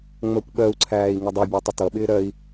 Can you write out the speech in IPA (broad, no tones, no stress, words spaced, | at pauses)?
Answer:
ŋ͡mɜkʷɓɜu̯ǀʰæːi̯ ŋɪdˤibʲɜ tˤətʌɓɪː ɾɜi̯